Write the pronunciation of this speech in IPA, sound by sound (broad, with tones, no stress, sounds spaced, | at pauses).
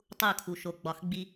tˤ u˦˨ kʰ u˨ ʃ o˨ ɡ͡b ɒ˨ x ɡ͡b i˦